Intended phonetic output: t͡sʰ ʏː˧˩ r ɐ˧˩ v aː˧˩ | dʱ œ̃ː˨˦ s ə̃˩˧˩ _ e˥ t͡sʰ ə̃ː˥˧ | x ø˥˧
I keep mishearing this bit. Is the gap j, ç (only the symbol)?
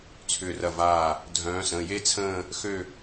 j